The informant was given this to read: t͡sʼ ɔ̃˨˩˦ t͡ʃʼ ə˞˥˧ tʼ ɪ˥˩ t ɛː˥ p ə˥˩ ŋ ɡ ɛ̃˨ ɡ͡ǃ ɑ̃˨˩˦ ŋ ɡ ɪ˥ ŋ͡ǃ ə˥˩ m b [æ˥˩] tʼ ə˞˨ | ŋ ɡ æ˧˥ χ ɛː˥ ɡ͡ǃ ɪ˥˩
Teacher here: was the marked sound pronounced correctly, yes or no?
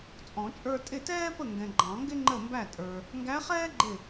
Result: yes